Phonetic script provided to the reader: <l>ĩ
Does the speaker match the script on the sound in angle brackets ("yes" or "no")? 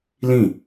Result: yes